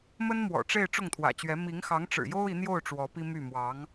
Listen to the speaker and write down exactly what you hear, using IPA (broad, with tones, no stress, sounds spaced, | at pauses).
m ə˥ n m w ɔ̰˨˩ ʈ͡ʂ e˥˧ ɪ̯ ʈ͡ʂ ʊ˥˩ ŋ t̪ʰ w ä̰˨˩ t͡ɕ ɥ ɛ˧˥ m i˧˥ ŋ x ɑ˧˥ ŋ ʈ͡ʂ ɻ̩˨˩ j o˥ ʊ̯ i˧˥ n̪ j o˥˩ ʊ̯ ʈ͡ʂ w ɔ˧˥ p i˥ m y˥˩ m w ɑ˧˥ ŋ